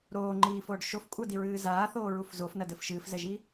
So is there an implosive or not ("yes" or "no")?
no